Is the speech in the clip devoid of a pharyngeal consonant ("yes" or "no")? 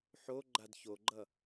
no